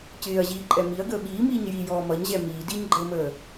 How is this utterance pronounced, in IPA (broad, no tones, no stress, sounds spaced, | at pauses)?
c ɪː ɐ̯ ʑ iː ǃʼ ɛ m i ɐ̯ ɡ əː ɓ iː m iː ɲ j i j ɔː m ʌ ɲ ʑ ɛ m iː d i ɲ ɡ͡ǃ əː m əː